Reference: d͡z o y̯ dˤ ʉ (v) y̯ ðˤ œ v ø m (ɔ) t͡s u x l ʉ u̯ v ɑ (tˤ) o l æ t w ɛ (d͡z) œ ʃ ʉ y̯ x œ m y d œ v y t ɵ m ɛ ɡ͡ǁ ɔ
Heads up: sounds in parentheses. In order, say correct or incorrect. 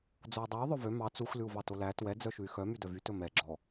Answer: incorrect, incorrect, incorrect, correct

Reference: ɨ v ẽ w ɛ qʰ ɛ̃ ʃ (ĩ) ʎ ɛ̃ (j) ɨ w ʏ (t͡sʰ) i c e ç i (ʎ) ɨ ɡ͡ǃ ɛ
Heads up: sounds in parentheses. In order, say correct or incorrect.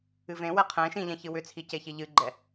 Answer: correct, incorrect, correct, correct

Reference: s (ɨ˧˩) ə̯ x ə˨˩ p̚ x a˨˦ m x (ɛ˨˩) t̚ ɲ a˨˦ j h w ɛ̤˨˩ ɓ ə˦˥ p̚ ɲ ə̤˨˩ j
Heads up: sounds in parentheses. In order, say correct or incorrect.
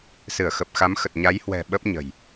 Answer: correct, incorrect

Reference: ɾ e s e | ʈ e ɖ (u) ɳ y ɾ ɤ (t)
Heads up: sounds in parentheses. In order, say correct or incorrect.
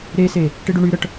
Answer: correct, incorrect

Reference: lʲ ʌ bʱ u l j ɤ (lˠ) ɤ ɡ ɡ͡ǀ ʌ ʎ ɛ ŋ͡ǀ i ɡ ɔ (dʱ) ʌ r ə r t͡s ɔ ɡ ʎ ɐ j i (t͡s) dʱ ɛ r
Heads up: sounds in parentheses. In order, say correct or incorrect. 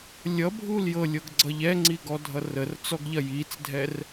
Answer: incorrect, correct, correct

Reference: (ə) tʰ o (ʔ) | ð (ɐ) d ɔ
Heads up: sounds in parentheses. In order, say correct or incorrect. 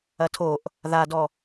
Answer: incorrect, correct, incorrect

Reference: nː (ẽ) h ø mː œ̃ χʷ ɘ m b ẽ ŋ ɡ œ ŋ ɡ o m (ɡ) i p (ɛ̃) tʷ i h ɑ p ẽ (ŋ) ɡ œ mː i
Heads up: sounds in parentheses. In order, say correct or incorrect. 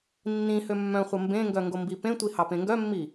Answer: incorrect, incorrect, incorrect, correct

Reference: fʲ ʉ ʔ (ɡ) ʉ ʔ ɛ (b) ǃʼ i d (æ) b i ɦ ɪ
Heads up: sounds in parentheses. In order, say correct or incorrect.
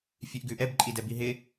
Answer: correct, correct, incorrect

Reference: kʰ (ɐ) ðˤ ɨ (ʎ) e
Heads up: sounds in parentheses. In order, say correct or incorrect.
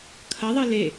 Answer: correct, incorrect

